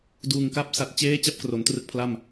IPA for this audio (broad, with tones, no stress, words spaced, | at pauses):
duː˨˩ŋka˥˩p̚ sa˨˩t̚t͡ɕeː˦˥ t͡ɕa˥˩p̚kro˩˦ntrɯ˦˥k̚pʰla˥˩m